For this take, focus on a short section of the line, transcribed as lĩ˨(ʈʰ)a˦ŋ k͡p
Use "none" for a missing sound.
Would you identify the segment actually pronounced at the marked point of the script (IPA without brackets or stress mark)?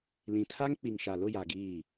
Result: tʰ